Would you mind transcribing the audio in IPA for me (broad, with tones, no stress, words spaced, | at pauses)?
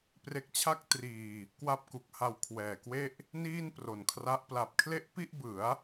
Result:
pre˦˥k̚t͡ɕʰa˥˩k̚ triː˧ | kwa˥˩p̚ku˨˩k̚ha˧w kʰwɛː˨˩kwe˥˩ʔ | niː˥˩npro˨˩nkʰra˦˥ʔ pla˨˩p̚kʰle˥˩ʔpi˥˩ʔbɯ˩˦a̯